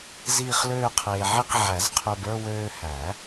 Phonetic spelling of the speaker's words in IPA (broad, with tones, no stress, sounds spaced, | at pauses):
z iː˥˧ χ l øː˥˧ qʰ eː˧ ʕ i˥˧ q ʕ æ˨˩˦ z qʰ ø˧ b ə˞˥˧ w øː˧ h æ˨˩˦